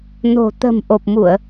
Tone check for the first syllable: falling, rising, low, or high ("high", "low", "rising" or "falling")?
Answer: low